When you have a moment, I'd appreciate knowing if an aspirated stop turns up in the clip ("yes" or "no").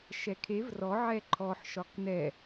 yes